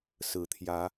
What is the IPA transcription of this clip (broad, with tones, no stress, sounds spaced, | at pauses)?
s ɹ̩˨˩ t̪ʰ j ä˨˦